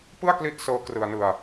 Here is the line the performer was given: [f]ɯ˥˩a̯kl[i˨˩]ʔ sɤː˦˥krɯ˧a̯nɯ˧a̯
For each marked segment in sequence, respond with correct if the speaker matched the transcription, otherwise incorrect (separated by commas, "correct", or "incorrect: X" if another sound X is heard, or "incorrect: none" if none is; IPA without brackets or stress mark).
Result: incorrect: p, incorrect: i˦˥